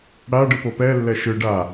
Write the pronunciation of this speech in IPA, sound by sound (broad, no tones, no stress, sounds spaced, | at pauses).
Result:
ɽ a ɖ ɯ p o p ɛ lː ɛ ʃ ɯ ɖ a